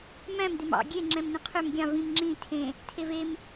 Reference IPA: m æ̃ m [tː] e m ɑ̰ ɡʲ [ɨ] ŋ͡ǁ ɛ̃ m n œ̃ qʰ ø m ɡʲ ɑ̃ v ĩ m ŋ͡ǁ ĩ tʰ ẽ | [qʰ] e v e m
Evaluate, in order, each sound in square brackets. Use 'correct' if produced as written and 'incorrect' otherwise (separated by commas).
incorrect, incorrect, incorrect